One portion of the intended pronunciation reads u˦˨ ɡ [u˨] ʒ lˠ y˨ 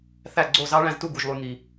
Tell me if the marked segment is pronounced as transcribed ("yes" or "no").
yes